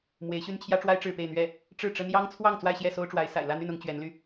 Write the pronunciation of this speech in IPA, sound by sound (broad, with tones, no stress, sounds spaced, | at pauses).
m w e˧˥ ɪ̯ ɕ y˥ n t͡ɕʰ j ä˥ ʈ͡ʂ w a˥ ɪ̯ ʈ͡ʂ ɻ̩˥˧ p e˥˧ ɪ̯ n̪ ɥ ɛ˥˩ | ʈ͡ʂ ɻ̩˥˩ ʈ͡ʂ ə˥ n j ɑ˥ ŋ t͡sʰ w ɑ˥˧ ŋ t͡s w a˥˧ ɪ̯ ɕ j ɛ˥˩ s o˥ ʊ̯ ʈ͡ʂ w a˧˥ ɪ̯ s a̰˨˩ ɪ̯ l ä˥˧ n̪ y˥˩ n ʊ˧˥ ŋ t͡ɕ ɥ ɛ˧˥ n l y˧